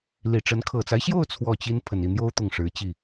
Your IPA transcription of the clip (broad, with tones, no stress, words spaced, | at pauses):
li˨˩ʈ͡ʂə˧˥n kʰɤ˨˩t͡sa˦ɪ̯ɕjo˥˧ʊ̯ t͡sʰwɔ˥˩t͡ɕi˥n pʰə˨˩ni˥˩n̪jo˥ʊ̯ t̪ʊ˥˩ŋʂɻ̩˧˥t͡ɕi˥˩